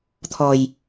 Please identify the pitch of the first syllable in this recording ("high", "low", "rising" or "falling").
low